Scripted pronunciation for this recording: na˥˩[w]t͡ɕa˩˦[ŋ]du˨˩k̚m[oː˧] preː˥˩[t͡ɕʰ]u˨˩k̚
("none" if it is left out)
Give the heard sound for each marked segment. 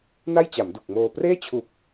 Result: j, m, oː˧, t͡ɕʰ

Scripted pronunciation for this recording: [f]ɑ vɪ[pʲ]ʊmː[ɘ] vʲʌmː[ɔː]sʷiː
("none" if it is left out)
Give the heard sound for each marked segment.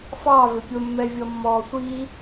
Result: f, pʲ, ɛ, ɔː

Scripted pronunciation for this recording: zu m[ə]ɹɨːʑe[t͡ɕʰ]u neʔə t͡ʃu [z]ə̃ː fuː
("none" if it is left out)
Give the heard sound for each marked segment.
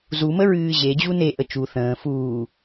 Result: ə, d͡ʑ, θ

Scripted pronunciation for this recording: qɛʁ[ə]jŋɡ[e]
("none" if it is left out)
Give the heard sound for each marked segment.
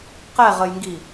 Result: ə, i

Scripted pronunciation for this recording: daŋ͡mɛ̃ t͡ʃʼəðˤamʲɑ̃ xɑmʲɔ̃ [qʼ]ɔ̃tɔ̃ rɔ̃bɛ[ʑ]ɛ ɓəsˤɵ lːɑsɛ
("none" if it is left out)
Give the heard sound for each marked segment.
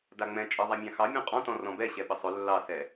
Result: qʼ, ɕ

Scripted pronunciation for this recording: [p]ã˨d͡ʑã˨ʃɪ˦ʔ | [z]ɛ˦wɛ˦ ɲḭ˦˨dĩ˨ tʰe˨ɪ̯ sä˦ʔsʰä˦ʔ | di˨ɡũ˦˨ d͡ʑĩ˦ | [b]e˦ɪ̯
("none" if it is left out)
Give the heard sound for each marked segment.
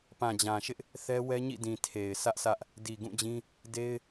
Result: p, θ, d

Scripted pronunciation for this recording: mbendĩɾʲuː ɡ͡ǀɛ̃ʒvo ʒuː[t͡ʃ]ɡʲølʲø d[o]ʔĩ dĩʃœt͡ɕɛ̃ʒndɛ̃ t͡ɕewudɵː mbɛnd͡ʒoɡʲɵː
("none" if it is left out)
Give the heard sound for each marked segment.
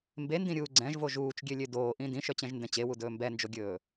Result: t͡ʃ, oː

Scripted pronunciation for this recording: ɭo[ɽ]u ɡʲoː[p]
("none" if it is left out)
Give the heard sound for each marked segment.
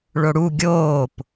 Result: ɽ, p

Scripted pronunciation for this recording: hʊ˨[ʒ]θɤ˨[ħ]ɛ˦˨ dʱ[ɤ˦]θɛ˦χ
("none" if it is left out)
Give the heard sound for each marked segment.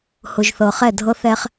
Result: ʒ, χ, ɤ˦

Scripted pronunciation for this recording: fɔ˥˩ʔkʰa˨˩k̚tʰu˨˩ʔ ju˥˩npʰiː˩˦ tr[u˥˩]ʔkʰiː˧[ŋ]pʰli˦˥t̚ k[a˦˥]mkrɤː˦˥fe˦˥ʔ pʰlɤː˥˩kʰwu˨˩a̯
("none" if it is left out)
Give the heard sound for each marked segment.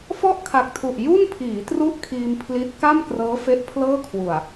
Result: u˥˩, m, a˥˩

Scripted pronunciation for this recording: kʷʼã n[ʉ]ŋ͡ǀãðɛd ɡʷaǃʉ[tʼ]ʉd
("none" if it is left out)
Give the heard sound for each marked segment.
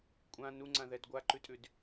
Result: u, tʼ

